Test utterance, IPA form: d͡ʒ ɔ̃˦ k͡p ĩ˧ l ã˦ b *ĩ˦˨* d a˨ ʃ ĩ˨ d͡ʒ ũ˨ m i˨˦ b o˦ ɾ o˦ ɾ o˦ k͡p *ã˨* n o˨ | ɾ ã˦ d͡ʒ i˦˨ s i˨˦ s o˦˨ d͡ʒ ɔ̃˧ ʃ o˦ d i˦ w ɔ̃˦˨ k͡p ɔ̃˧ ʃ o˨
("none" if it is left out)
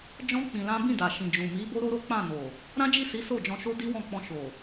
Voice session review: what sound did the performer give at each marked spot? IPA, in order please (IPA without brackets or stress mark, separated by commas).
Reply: ĩ˦˨, ã˦˨